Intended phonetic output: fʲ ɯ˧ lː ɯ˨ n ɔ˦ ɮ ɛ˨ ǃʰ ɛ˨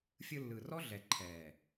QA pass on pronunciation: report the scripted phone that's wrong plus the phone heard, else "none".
n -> r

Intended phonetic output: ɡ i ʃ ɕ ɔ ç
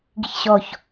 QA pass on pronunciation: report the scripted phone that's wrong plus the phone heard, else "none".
ʃ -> ç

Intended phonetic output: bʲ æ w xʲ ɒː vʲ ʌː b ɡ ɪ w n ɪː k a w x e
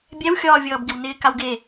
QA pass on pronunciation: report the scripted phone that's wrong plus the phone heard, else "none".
x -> ɡ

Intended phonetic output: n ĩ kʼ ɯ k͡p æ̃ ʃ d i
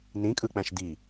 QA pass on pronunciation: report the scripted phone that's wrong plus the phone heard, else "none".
none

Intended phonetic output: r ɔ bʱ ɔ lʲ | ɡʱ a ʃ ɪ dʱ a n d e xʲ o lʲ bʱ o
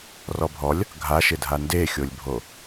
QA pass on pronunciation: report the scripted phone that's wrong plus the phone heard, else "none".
none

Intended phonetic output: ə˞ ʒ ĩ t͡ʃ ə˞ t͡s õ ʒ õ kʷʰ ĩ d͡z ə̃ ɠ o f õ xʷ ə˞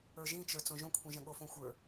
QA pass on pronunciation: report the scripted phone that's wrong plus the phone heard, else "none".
d͡z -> ʒ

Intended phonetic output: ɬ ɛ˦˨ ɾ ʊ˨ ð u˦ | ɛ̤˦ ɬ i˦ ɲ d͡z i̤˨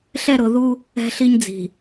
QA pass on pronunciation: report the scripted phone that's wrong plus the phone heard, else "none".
none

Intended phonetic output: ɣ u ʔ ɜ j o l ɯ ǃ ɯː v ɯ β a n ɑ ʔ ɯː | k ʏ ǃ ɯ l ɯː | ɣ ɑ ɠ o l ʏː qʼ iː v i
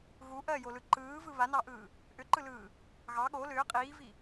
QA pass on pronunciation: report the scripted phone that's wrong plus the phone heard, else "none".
k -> ʔ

